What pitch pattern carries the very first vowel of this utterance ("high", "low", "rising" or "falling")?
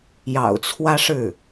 low